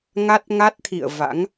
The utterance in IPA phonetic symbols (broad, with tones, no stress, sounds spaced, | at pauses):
ŋ a˦˥ t̚ ŋ a˦˥ t̚ t̪ʰ ḭ˧˨ ə̯ v a̰˧˥ ŋ